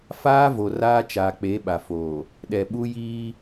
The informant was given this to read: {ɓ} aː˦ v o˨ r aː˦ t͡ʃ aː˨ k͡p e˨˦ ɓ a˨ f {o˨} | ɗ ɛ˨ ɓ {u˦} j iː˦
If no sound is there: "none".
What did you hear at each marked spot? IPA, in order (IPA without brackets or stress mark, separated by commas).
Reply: f, oː˨, u˦